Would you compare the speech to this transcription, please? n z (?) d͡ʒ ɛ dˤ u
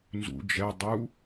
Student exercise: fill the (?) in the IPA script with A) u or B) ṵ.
B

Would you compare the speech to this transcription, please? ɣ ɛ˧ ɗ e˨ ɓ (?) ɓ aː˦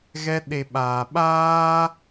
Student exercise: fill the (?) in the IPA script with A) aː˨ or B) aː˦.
A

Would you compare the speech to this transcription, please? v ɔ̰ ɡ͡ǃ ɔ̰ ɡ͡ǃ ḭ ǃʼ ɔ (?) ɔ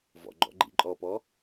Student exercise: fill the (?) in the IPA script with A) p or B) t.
A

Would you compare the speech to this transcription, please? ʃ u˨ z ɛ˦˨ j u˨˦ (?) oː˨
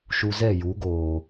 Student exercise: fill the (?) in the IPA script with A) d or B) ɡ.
B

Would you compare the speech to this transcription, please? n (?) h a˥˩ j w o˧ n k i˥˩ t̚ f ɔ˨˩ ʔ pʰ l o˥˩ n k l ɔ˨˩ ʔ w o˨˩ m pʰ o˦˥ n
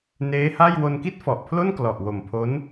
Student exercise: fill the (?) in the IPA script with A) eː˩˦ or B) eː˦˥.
B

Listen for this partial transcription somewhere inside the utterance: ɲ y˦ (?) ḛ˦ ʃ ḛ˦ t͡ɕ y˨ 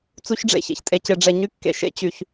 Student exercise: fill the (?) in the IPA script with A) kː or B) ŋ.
A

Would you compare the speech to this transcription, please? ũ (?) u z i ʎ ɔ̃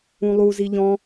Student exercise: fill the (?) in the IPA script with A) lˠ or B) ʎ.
A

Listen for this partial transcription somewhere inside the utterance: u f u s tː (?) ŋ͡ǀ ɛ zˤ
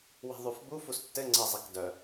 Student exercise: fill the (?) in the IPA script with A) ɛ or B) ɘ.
B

